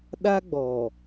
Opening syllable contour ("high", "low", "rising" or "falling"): high